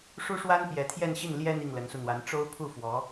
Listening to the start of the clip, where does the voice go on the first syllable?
high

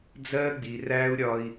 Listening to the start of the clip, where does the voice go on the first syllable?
high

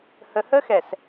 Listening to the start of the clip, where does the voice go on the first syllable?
low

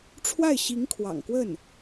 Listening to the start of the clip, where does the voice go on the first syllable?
falling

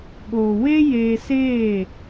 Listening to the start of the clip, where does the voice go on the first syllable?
low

